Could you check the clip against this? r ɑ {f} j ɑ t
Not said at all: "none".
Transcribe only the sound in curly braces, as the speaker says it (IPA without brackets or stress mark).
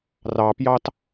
p